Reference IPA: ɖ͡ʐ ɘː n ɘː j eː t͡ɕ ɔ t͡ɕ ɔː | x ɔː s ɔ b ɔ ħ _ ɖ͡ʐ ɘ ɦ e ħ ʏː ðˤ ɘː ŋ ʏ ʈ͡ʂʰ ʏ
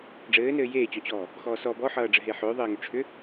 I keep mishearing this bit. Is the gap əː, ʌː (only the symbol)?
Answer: ʌː